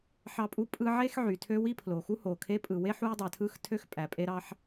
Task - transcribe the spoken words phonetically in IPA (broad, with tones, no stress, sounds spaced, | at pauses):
ħ ɑ˥ pʼ u˥ pʼ ɯ˥ ʕ e˥ x ʕ y˩ tʰ ø˥ w i˥ pʰ l o˩ x u˥ h o˩ kʰ e˥ pʼ ɯ˩ w e˥ ħ u˥ j dˤ æ˩ tʰ ɯ˥ x tʰ ø˥ x pʼ æ˩ pʼ e˥ ɾ ɑ˥ ħ